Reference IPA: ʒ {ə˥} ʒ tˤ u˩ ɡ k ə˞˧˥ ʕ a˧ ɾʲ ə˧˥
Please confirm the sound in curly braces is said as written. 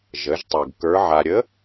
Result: no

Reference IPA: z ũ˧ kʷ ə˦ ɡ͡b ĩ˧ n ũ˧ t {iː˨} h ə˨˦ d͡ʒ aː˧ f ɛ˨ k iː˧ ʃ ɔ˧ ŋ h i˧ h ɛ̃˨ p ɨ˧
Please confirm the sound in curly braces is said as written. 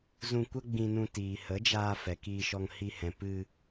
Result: yes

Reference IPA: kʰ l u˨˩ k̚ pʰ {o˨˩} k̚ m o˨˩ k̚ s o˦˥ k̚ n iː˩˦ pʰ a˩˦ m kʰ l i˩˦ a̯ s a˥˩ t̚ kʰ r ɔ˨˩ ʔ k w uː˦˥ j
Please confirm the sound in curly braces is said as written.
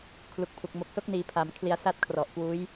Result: no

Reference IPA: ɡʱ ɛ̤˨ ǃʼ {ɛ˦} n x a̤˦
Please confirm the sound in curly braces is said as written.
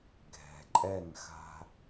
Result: no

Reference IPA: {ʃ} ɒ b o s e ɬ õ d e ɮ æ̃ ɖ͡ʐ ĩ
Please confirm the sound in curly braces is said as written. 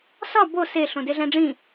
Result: no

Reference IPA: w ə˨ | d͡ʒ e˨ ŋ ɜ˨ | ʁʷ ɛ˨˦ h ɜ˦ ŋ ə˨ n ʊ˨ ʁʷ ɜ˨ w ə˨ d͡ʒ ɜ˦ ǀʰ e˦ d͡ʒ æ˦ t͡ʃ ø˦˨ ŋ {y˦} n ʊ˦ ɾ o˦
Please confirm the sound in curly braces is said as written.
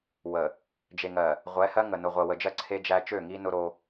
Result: no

